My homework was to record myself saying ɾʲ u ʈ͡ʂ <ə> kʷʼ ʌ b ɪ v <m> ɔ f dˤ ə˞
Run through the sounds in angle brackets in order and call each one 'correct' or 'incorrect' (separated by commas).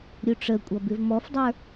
correct, correct